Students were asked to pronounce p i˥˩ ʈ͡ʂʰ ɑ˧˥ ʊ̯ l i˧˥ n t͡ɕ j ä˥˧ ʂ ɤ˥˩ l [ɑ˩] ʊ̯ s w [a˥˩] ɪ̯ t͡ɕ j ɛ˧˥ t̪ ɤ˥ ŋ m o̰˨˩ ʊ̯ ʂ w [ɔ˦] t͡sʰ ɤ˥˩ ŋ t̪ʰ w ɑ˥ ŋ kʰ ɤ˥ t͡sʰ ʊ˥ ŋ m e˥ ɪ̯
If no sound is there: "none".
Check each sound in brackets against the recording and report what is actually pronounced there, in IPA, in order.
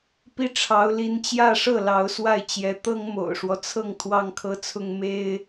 ɑ˧˥, a˥˩, ɔ˦

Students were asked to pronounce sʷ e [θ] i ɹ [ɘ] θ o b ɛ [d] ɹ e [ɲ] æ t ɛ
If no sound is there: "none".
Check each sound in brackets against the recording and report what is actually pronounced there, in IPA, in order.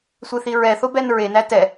θ, ɛ, n, n

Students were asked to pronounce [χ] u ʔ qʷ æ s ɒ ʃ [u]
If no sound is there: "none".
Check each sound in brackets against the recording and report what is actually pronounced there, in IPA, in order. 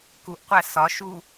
k, u

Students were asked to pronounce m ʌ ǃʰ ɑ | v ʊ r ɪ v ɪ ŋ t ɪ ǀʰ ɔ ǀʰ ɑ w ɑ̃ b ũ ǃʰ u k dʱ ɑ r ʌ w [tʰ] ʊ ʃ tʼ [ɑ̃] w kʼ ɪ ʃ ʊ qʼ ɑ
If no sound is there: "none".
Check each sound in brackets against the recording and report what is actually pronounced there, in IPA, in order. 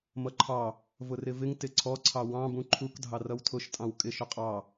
tʰ, ɑ̃

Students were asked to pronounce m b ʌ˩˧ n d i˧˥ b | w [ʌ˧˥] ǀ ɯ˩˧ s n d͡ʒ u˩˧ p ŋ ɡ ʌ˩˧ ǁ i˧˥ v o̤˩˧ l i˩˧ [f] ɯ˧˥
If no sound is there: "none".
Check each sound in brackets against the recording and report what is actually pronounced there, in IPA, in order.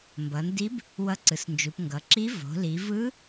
ʌ˧˥, v

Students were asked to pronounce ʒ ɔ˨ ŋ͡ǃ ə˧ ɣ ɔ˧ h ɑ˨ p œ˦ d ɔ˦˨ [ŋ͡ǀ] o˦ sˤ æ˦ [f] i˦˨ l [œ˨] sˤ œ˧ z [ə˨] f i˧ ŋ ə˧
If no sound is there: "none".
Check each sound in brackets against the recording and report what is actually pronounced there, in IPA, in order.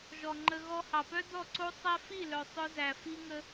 ǀ, f, œ˨, æ˨

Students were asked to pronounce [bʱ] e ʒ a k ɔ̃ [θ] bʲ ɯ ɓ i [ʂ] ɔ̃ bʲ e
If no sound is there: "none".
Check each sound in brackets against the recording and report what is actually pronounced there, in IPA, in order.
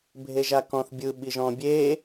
bʱ, θ, ʒ

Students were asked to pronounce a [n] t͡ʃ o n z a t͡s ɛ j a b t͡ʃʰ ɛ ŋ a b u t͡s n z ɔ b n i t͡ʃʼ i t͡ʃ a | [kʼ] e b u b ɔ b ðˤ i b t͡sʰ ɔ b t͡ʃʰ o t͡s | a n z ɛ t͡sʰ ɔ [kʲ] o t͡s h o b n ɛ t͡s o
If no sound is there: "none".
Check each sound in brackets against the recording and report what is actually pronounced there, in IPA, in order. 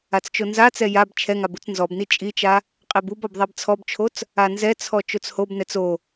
t͡s, qʼ, t͡ʃ

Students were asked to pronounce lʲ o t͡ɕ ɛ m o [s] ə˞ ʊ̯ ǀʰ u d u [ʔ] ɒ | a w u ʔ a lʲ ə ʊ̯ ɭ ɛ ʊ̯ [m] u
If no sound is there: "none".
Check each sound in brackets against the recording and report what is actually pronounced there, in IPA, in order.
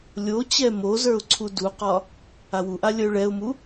z, q, m

